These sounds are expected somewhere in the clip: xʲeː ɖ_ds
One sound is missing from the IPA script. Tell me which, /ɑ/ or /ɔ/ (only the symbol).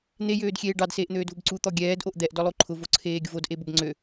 ɑ